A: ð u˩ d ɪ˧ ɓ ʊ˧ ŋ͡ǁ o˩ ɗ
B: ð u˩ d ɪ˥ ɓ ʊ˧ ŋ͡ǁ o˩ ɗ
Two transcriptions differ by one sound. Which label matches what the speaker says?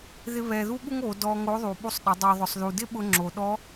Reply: B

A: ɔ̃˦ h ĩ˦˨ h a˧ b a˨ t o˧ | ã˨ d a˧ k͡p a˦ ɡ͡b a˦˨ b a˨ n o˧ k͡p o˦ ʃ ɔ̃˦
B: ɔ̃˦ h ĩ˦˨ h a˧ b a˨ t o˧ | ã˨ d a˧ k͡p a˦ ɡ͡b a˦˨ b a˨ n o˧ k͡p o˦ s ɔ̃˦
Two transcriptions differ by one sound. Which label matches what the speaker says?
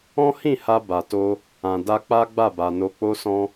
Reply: B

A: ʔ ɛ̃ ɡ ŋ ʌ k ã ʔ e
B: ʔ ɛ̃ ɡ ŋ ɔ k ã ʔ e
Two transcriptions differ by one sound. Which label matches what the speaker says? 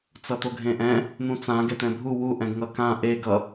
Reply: A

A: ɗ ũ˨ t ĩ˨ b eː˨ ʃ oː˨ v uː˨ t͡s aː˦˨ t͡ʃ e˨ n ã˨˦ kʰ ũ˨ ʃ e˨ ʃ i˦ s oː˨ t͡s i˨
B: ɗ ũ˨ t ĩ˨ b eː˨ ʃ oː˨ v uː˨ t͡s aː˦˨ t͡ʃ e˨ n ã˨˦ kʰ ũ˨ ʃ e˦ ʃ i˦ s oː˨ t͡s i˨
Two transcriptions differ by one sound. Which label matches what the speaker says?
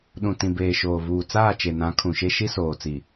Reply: B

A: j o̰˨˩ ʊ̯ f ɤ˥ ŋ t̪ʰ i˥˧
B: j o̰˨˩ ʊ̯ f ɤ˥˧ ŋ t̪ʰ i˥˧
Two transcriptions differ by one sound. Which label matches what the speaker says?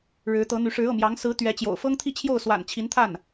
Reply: A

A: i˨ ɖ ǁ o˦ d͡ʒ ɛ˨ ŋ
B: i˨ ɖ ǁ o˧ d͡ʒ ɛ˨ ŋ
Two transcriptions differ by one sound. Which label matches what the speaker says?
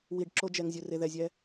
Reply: B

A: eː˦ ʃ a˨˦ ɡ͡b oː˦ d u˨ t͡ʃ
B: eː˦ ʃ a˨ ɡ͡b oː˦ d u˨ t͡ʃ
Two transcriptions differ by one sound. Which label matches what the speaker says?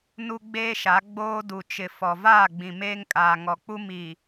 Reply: A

